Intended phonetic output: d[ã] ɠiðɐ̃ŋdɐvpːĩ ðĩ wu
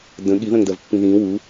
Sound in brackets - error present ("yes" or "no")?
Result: yes